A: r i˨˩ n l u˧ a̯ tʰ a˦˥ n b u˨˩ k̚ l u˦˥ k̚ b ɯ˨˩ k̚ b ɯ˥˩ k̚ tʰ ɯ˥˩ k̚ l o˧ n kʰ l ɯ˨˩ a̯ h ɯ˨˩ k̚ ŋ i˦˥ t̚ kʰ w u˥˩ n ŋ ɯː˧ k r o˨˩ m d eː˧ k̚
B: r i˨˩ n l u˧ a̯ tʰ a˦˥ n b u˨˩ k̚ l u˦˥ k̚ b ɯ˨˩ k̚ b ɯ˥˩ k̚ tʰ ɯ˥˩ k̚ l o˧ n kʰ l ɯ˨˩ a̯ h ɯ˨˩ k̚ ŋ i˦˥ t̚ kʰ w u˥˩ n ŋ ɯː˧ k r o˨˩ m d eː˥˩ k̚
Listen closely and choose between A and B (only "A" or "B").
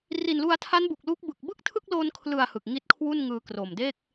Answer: B